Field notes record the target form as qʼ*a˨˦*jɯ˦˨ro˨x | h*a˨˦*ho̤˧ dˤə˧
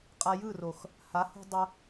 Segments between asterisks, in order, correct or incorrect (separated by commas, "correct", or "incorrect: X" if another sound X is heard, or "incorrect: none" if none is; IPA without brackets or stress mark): incorrect: a˧, correct